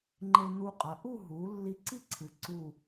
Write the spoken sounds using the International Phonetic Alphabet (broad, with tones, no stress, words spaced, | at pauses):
ŋ͡ǃe˧nu˧qʼɐ˩˧ ʔu˥˧ɦu˩˧ lːi˧ǀi˥ǀʰɨ˩˧ ǀu˧˩